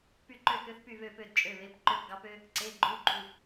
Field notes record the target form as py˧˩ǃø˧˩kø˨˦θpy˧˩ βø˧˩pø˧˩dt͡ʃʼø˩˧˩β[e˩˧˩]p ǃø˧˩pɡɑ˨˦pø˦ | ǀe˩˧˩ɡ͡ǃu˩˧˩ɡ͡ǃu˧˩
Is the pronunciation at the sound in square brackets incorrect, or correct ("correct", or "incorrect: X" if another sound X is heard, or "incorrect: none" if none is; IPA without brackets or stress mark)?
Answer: correct